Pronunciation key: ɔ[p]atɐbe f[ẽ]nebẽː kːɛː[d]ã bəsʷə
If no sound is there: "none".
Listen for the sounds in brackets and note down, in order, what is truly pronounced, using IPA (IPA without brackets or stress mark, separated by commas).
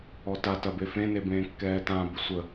t, ẽ, t